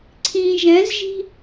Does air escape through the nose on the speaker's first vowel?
yes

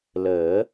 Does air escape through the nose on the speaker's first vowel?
no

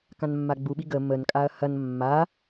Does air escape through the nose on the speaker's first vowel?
yes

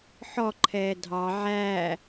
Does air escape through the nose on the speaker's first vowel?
no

